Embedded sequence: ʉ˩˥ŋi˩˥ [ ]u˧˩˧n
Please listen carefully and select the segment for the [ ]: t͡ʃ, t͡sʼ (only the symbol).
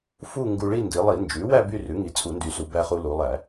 t͡sʼ